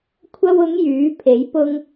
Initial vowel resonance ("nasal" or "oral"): oral